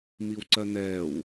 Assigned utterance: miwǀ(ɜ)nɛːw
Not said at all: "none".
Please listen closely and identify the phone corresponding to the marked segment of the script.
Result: ɜ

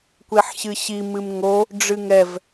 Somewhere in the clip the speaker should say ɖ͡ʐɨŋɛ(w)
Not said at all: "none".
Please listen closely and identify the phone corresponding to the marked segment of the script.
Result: v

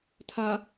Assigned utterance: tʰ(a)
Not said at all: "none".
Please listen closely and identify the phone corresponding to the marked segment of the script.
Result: a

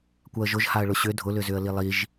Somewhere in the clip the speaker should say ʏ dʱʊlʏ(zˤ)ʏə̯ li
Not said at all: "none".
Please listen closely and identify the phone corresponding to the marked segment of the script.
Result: z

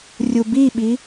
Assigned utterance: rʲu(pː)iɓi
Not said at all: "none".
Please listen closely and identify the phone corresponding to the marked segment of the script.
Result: b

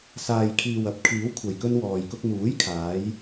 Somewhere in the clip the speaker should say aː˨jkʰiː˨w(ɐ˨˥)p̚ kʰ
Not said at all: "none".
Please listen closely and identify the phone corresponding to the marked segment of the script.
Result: ɐ˨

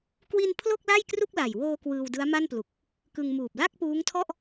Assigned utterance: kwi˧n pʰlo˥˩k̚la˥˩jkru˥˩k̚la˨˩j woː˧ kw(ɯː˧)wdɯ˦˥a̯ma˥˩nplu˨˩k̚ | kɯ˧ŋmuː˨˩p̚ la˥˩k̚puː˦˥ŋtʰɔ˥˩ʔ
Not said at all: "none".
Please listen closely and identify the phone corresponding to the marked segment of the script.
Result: ɯː˧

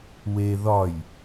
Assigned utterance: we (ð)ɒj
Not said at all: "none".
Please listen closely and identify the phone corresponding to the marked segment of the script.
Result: ð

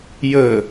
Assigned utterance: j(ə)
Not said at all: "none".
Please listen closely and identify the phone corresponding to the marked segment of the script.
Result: ə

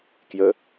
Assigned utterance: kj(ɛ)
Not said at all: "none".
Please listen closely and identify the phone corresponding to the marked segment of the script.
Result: ə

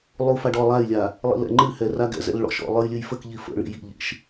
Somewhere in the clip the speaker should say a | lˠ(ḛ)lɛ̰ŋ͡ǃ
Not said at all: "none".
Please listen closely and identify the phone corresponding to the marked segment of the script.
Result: ḭ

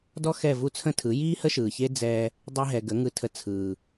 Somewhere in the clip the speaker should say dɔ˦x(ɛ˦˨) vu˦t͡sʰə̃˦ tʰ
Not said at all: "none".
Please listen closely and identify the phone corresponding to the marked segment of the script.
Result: ɛ˦˨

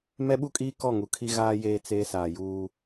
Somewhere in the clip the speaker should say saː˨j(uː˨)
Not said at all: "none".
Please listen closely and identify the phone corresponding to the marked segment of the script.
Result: uː˦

